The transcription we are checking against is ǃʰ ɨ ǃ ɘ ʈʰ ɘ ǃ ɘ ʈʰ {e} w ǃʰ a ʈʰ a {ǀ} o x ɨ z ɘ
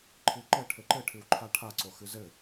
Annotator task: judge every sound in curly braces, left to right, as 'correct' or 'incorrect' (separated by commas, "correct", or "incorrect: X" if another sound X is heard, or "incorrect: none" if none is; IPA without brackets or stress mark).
incorrect: ɨ, correct